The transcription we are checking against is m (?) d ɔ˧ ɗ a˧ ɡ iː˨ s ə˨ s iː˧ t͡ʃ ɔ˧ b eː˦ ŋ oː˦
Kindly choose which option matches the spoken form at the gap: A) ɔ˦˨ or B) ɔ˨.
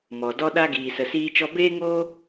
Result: B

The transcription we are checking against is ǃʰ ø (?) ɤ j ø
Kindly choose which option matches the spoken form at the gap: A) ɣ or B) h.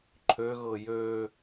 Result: A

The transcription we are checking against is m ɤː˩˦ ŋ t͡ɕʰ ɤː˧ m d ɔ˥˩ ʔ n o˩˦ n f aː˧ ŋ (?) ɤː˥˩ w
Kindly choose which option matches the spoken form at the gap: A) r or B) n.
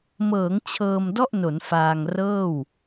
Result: A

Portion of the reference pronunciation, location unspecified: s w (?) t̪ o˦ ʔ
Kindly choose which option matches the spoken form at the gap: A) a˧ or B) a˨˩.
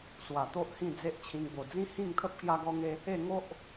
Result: B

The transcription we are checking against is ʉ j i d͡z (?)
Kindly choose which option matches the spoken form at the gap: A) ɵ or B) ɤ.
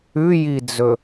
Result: A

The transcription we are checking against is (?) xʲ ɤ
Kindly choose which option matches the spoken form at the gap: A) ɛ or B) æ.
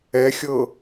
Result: A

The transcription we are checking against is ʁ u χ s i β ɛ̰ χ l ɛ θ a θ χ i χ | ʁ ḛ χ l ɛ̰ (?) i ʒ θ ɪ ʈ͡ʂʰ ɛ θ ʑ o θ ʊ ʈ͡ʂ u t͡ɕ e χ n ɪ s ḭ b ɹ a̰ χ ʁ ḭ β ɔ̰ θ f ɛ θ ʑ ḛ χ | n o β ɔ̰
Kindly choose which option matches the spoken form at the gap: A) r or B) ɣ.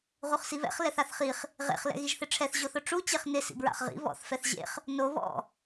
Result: B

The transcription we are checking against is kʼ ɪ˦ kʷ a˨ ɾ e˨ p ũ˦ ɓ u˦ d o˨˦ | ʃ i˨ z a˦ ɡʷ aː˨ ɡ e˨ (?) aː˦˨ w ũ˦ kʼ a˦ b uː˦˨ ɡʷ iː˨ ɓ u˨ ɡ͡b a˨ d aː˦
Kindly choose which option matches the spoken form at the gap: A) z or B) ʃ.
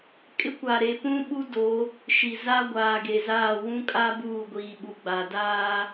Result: A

